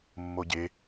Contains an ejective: no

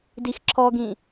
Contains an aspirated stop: yes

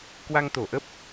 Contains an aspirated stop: no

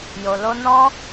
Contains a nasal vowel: yes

